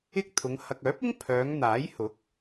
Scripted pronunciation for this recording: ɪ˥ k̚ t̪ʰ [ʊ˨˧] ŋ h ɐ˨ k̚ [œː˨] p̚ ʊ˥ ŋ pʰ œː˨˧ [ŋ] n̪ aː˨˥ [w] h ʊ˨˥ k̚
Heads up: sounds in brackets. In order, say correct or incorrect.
correct, incorrect, correct, incorrect

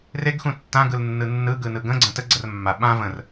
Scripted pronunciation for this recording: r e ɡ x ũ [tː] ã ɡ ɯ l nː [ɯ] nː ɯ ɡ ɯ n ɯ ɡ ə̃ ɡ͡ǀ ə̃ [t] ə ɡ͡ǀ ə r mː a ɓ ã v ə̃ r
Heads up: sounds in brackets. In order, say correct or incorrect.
correct, correct, correct

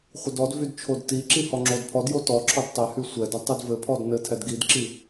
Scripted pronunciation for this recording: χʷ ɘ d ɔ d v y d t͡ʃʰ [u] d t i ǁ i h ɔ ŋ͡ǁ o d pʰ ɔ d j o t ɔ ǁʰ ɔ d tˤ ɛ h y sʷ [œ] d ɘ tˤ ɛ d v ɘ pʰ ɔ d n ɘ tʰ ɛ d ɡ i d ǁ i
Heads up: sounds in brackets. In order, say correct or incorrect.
incorrect, incorrect

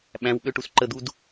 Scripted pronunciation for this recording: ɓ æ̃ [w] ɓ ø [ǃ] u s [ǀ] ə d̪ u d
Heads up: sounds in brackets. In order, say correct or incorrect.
correct, incorrect, incorrect

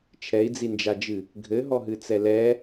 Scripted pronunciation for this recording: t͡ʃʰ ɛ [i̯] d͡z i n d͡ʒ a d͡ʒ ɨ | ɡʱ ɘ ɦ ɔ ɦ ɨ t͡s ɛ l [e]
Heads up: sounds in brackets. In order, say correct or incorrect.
correct, incorrect

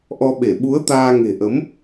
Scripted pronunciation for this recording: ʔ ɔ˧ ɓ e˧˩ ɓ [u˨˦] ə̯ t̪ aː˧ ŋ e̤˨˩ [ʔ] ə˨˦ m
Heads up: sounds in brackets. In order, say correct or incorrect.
correct, correct

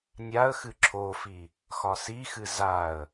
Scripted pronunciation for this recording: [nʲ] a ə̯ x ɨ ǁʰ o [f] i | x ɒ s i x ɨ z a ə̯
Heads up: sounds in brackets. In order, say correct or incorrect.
correct, correct

